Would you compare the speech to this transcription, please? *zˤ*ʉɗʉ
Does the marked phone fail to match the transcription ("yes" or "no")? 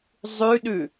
no